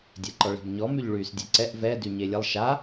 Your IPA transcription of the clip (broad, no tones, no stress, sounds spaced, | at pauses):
dʲ ɛ ǃ ɔ ɭ e̤ b ɲ ɔ m y ʎ ɭ yː s dʲ ɛ ǀ ɛ ʔ v ɛ d y ɲ e lʲ ə lˠ ʃ a